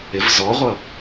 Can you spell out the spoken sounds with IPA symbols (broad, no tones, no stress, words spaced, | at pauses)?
ɪv zɔʁʷʌ